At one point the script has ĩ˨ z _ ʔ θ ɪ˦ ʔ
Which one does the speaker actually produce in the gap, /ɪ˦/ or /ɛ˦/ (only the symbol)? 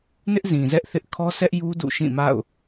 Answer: ɛ˦